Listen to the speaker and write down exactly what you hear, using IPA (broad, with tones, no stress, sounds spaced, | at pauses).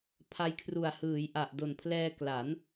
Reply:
pʰ a˦˥ j kʰ r u˨˩ a̯ h ɯː˩˦ j ʔ a˨˩ ʔ d o˨˩ n pʰ l ɛː˧ k l a˩˦ n